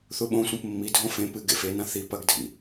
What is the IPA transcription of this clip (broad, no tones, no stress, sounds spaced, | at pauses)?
θ u ɓ õ sʷ ẽ p mː i dʱ õ f ẽ p ɨ ɡ ḛ f e n ã θ i p ɐ ɡ dʱ ḭ